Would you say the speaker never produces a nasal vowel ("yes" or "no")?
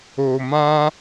no